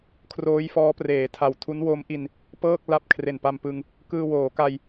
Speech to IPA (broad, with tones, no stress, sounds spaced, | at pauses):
kʰ r oː˦˥ j f ɔː˦˥ p r eː˩˦ tʰ a˨˩ w tʰ u˦˥ n w o˦˥ m ʔ i˧ n | p ɤː˥˩ k̚ l a˦˥ p̚ kʰ r e˨˩ n p a˧ m p ɯ˧ ŋ | k ɯː˧ w oː˩˦ k a˧ j